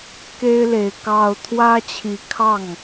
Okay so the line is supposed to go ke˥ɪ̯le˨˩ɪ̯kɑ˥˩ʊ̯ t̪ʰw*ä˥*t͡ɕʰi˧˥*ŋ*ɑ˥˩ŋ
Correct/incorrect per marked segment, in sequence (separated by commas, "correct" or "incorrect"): correct, incorrect